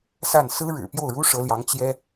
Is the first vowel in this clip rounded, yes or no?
no